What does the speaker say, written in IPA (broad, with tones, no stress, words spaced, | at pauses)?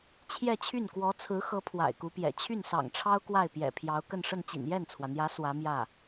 t͡ɕʰjɛ˥˧t͡ɕʰy˥˩n kwɔ˧˥t͡sʰɹ̩˧˥xɤ˧˥ pʰwa̰˨˩ɪ̯ku˧˥pjɛ̰˨˩ t͡ɕʰy˥˩nsɑ̰˨˩ŋʈ͡ʂʰɑ˥ʊ̯ kwa˥˩ɪ̯pjɛ̰˨˩pʰjɑ˧˥ʊ̯ kə˥˧nʂə˥˩nt͡ɕḭ˨˩n jɛ˥˩nt͡sʰwä˩n̪jä˧˥ swä˧˥ mjä˥˩